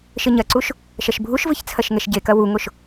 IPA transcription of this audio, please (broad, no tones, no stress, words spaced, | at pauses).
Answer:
ʃɘɲɐǀuʃ | ʃɐʃbʱuʃvɨç t͡sʰɐʃŋɛʃɟekɐ wuŋoʃ